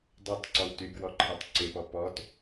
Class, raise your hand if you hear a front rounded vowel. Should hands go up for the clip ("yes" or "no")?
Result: yes